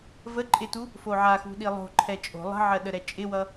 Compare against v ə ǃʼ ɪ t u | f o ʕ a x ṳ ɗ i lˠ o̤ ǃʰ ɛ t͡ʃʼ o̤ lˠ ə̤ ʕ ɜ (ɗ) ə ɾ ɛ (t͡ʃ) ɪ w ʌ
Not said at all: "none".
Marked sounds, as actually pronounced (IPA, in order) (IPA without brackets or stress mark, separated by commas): ɗ, t͡ʃʼ